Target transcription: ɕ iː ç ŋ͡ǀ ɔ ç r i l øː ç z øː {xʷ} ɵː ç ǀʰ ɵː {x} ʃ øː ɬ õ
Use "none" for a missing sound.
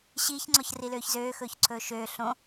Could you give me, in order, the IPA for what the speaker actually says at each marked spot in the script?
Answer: x, none

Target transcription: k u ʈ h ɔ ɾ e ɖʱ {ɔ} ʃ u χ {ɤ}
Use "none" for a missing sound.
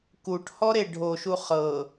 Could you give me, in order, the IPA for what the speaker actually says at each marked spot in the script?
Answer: o, ɤ

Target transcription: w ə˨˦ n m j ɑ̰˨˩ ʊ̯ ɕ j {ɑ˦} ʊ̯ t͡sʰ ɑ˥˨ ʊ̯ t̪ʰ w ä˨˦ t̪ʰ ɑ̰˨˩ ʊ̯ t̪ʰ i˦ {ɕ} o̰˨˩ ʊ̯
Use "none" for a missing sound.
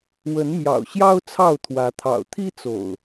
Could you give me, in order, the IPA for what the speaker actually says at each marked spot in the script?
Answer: ɑ˦, t͡s

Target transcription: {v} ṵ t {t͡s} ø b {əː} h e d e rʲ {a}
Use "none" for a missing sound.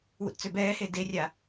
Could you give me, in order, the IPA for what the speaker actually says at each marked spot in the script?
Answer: w, t͡s, ɛː, a

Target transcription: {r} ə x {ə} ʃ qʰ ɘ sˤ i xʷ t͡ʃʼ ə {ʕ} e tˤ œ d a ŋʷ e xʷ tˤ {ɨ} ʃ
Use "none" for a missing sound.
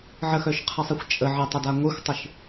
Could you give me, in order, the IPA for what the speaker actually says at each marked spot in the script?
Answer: ʕ, œ, ʕ, ɨ

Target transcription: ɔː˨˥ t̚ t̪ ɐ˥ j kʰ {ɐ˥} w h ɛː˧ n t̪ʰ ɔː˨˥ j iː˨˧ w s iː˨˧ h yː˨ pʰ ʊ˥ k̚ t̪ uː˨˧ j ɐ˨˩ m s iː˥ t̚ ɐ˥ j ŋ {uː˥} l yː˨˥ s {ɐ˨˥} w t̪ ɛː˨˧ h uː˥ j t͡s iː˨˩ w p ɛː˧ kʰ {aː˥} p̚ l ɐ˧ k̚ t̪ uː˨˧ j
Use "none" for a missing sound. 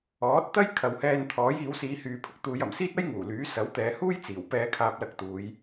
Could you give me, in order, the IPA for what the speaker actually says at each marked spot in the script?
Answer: ɐ˨˧, uː˨˩, ɐ˨˥, aː˧

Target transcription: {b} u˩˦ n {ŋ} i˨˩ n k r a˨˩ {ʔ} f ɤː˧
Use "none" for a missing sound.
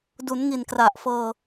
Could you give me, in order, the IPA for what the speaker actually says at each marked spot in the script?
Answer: d, ŋ, ʔ

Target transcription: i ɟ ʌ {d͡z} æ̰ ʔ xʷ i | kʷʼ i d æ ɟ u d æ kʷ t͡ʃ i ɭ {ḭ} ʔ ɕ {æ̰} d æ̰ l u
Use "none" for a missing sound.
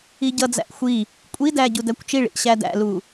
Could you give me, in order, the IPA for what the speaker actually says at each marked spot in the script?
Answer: d͡z, ḭ, æ

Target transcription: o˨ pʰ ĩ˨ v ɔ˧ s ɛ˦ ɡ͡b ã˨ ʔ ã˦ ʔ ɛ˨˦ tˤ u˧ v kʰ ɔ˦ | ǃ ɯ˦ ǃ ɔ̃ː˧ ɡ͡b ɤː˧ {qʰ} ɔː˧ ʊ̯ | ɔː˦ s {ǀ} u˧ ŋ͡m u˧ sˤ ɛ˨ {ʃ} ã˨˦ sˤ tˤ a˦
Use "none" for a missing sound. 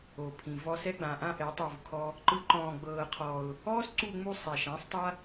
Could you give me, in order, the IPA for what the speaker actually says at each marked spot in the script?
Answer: qʰ, ǀ, ʃ

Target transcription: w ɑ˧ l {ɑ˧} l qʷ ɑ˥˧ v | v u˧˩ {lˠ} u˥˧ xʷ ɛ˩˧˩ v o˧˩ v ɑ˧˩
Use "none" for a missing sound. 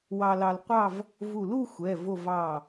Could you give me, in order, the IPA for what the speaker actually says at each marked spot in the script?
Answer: ɑ˧, l

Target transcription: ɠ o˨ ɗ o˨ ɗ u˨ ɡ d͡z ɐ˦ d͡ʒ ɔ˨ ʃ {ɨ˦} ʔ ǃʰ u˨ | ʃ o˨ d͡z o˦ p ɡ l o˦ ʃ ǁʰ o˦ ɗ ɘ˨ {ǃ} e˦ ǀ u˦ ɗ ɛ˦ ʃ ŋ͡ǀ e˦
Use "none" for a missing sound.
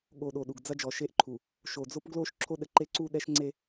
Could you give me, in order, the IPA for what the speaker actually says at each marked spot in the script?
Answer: e˦, ǃ

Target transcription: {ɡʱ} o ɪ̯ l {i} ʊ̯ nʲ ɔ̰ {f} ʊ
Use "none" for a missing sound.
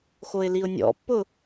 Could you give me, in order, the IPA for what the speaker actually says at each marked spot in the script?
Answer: x, i, pː

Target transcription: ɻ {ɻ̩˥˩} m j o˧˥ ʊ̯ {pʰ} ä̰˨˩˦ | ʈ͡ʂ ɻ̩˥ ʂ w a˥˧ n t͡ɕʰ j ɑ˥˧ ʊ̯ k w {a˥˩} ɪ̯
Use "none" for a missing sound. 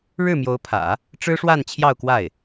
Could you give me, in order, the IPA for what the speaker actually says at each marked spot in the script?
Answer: ɻ̩˥˩, pʰ, a˥˩

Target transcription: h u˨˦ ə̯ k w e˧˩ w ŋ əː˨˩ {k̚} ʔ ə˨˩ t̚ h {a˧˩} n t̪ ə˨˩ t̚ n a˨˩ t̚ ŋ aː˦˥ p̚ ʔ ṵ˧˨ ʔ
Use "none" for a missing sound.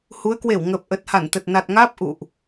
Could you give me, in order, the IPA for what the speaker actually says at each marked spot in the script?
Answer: p̚, a˧˩

